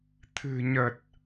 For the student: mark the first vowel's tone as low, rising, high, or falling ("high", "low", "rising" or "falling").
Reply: low